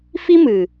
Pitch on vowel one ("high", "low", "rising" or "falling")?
high